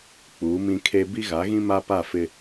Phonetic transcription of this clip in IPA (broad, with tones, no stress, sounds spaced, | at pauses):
k͡p uː˨˦ m ĩ˦ kʰ e˦ b i˦ ɣ a˨˦ ɣ ĩ˦ m a˦ p a˦˨ f ɪ˦